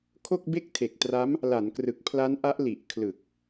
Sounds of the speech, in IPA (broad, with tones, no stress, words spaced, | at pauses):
kʰo˥˩k̚be˥˩k̚tʰe˨˩k̚tra˦˥m | la˩˦nkrɯ˨˩k̚ pʰla˦˥nʔa˦˥ʔ li˨˩ʔkʰlɯ˨˩k̚